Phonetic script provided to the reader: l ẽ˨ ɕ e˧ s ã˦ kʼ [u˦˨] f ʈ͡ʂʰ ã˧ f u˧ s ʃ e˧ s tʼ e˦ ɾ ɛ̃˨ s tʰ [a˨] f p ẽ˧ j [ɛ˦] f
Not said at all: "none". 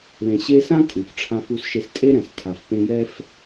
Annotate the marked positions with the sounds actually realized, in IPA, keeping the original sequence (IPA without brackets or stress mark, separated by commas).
u˨, a˨, ɛ˦